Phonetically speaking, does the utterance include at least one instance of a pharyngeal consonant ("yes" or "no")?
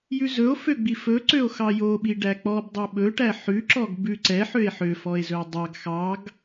yes